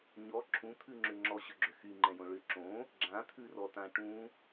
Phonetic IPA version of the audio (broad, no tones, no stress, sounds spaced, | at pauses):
ɲ ɔ ǁʰ ũ t̪ʰ ʉ ŋ͡ǁ ʏ ŋ͡ǁ ɔ ɕ ʏ ɡ͡ǁ ʏ x y ŋ͡ǃ ɛ̃ j õ ɭ ʏ ǁ õ | ɡ͡ǁ ã t̪ʰ ʉ r ɔ t ã ʈ ũ